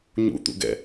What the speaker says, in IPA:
ɲ ṵ t̪ ṵ ɡ ɛ̰

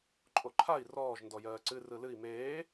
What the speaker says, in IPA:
ǃʼ o ǃʰ a i̯ r ɔː ʒ n d ɔ j ɜː ǀ ɨ r ɯ l ɨ i̯ m eː

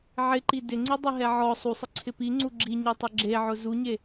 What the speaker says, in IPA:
ʕ ɪ ǃ i d ɪ ŋ͡ǀ i dˤ e ɦ ɛ ʕ ɔ sˤ u sˤ ɪ ǀʰ ɪ p i ŋ͡ǀ u ɡ͡ǁ i ɲ e tˤ ʊ ɡ͡ǁ e ʕ ʊ z u ɲ e

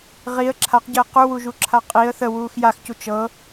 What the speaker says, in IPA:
ʁ i ə̯ ǁʰ a q ɟ əː q u w u ʒ u ǁʰ a qʼ i ə̯ θ ə w uː x j a x c u t͡ʃ ɤ

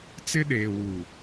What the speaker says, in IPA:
t͡s ɪ˦ ɗ eː˨ w u˨

